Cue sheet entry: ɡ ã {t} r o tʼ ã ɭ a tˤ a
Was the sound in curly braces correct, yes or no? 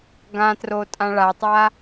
yes